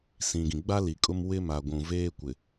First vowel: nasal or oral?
nasal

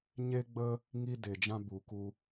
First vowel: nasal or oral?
oral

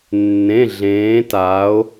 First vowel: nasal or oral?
nasal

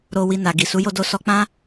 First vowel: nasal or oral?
oral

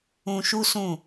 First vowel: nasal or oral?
nasal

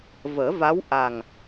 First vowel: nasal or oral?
oral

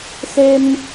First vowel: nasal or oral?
oral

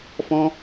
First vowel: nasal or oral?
nasal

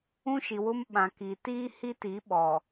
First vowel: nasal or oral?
nasal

